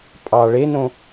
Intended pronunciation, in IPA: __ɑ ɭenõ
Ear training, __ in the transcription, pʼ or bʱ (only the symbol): pʼ